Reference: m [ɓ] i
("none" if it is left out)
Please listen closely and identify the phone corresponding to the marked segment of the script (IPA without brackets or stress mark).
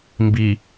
b